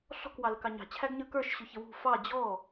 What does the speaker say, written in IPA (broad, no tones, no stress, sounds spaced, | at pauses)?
ɬ ɔ̤ k w ɑ l ə k ɑ ɲ ɑ̤ t͡ɕʰ æ ɡ ɲ ə˞ k ə˞ ʃ ɕ ʊ ç ə w ṳ f ɑ d͡ʑ ɔ